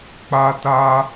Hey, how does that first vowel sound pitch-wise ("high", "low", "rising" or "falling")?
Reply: high